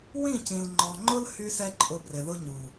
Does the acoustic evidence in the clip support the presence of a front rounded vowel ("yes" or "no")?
yes